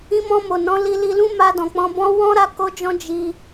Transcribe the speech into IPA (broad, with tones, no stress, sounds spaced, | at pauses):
ĩ˧ m ɔ̃˧ m o˨ n ɔ̃˨˦ l i˧ l i˧ l ũ˦ m a˧ d ɔ̃˨ k͡p ɔ̃˧ b ɔ̃˦ w ɔ̃˦ ɾ a˦˨ k o˧ d͡ʒ ɔ̃˧ d͡ʒ i˦